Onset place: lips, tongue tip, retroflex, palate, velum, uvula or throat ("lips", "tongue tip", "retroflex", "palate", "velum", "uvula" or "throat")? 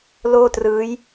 tongue tip